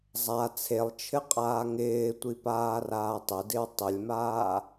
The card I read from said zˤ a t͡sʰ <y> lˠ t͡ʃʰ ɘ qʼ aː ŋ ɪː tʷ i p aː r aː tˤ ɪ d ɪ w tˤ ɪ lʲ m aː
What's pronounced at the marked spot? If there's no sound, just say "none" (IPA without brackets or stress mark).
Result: e